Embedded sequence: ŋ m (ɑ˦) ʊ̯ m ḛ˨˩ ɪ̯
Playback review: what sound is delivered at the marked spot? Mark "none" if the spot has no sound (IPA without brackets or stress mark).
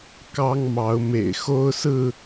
ɑ˨˦